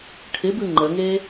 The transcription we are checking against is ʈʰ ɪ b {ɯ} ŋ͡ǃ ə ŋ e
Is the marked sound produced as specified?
yes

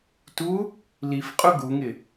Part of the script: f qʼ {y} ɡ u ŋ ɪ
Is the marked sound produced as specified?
no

